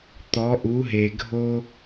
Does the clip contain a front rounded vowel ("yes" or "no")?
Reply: no